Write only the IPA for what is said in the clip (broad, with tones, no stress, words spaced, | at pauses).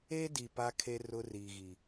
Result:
e˦di˨ pa˦kʰe˦ rʊ˦riː˨ɣi˨